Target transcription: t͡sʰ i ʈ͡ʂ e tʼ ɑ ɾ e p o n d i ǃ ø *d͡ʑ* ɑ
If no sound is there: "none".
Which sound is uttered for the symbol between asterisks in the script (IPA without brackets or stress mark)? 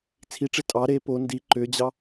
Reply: d͡ʑ